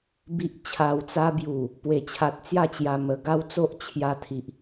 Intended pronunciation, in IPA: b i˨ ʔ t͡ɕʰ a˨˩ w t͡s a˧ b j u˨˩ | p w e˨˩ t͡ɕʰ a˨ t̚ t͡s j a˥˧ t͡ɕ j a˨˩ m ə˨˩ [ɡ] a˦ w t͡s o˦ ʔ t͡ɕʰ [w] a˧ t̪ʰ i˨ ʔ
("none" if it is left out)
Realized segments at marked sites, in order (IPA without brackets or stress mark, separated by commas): ɡ, j